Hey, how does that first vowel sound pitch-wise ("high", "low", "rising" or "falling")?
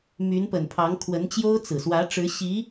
rising